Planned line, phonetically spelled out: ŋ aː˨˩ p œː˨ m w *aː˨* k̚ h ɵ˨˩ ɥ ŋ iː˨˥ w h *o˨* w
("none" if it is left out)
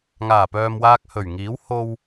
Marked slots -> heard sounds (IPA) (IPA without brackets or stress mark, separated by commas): aː˧, o˧